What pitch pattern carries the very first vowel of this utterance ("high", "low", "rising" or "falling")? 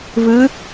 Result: rising